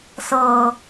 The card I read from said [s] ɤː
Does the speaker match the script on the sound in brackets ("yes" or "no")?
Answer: yes